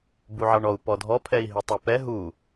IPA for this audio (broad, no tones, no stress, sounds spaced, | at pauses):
b u ʕ ɑ ɳ ɔ u̯ p ɔ dʱ ɔ pʰ ɛ i̯ ɦ i tˤ y p ɛ ɦ u